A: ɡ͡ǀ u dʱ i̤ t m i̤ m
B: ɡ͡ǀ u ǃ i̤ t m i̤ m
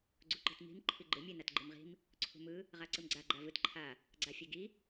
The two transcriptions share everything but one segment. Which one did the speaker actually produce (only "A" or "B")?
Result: B